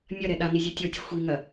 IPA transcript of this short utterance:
mʲ ɐ ɾ ɛ ɗ a n i zʲ ɔ tʲ ɔ tʲ ɐ xʷ i ŋ ɐ

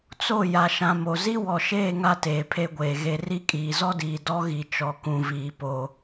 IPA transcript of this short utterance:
t͡s o˦˨ j a˨ ʃ ã˨ m o˨ z i˦ w ɔ˨ ʃ eː˦˨ ŋ a˦ t eː˨ pʰ e˦ ɡʷ eː˨ ɣ e˨ r i˦ kʼ iː˨ z ɔ˦ d iː˨ d ɔ˦ ɣ i˨ t͡ʃ ɔ˨ k ũ˨ v iː˨ p o˦

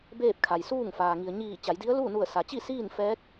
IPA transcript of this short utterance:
b eː˥˨ p̚ kʰ a˩ j s uː˥˨ ŋ f aː˩ ŋ i˩ ə̯ ɲ iː˧˩ t͡ɕ a˩˧ j d i˧˥ ə̯ l uː˥˨ n u˧˩ ə̯ s a˩ t͡ɕ i˥˨ s iː˥˨ n f ɛː˧˥ k̚

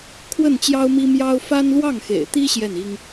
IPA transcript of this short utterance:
kʰ w ə˥˩ n t͡ɕ j ɑ˥ ʊ̯ m i˥ m j ɑ˥ ʊ̯ f a˥ n l w ɑ˥˩ ŋ x ḛ˨˩ ɪ̯ t̪ i˥ ɕ j ɛ˥˩ n i˥ ŋ

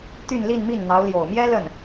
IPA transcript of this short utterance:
t̪ y˥˧ n l i˥˧ n m i˥˩ n n̪ ɑ˧˥ ʊ̯ l j o˨˩ ʊ̯ m j ɛ˥ l ə˥˩ n

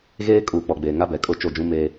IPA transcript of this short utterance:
ɣ eː˦ kʼ uː˨ k͡p ɔ˨ ɡ͡b eː˨ ŋ a˦ b ɛ˨ kʼ ʊ˦˨ t͡ʃ o˦˨ d͡ʒ ũ˦ m eː˦

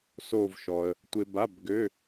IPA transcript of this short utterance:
s o˥˧ v ʃ ɔ˧ ə̯ | tʷ ɪ˧ b a˧˥˧ b ɡ ø˧˥˧

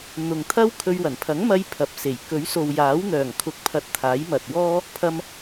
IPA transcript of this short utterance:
n̪ ʊ˨ ŋ t̪ʰ ɐ˥ w kʰ ɵ˧ ɥ w ɐ˨˩ n pʰ ɐ˨˥ ŋ m ɐ˧ j pʰ ɐ˨˥ p̚ s e˨˩ j k ɵ˨˥ ɥ s o˨ w j aː˨˥ w n̪ œː˨˩ ŋ kʰ ʊ˧ k̚ pʰ ɐ˧ t̚ t̪ʰ aː˨˥ j m ɐ˨ t̚ w ɔː˥ | pʰ ɐ˧ m

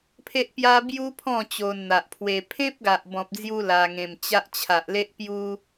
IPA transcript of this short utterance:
pʰ e˦ ʔ p j a˦ b j u˦ pʰ ɔ̃˥˧ t͡ɕ o˧ n n̪ a˨ ʔ pʰ w e˧ pʰ ẽ˦ p̚ ɡ a˨ ʔ b ɔ̃˨ p̚ d͡z j u˧ l a˧ ŋ ẽ˧ m t͡ɕ a˦ ʔ t͡ɕʰ a˨ ʔ l e˦ ʔ p j u˦

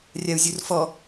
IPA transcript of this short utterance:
rʲ a u̯ zʲ u r f ɔ

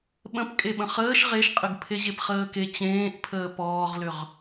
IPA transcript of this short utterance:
ɓ ə̃ p kʼ e ɓ ə̃ χ əː ʃ ʁ e ʃ qʼ ə ɡ pʰ e ʑ e p χ əː k e t͡ɕ ẽː ʔ pʰ əː p ɔː ʁ l ʏ ʁ

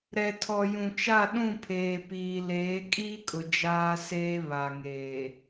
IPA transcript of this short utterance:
ɾ ɛ˨ tʰ ɔ˨ j ũ˨ t͡ʃ a˦˨ ɗ ũ˦˨ pʰ eː˨ p iː˨ l eː˨˦ kʼ iː˦ kʼ ʊ˨ d͡ʒ aː˦ s eː˦ β a˨ ŋ eː˨

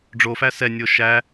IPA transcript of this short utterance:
ɖ͡ʐ o f æ s ɛ nʲ o ʃ æ

